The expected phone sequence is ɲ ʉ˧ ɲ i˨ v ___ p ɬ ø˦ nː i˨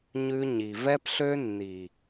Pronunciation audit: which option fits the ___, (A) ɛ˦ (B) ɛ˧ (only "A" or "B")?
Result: A